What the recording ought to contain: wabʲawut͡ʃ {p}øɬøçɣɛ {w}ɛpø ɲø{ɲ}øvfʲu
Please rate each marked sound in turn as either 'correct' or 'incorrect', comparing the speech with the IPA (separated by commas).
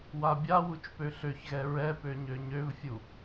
correct, incorrect, correct